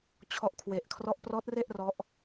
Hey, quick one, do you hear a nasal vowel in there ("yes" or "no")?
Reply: no